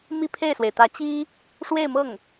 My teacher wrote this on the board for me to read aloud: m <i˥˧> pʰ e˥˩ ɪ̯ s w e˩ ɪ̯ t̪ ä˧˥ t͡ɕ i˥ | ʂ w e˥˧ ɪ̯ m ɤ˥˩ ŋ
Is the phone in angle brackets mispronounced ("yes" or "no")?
no